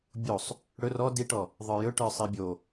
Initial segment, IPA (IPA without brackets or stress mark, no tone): bʲ